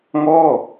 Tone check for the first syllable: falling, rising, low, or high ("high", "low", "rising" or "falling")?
falling